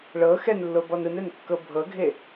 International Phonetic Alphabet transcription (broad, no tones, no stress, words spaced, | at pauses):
ɭɤ xɛnlːobɔn ɯnɛnkːɤ bʱɤɡʱe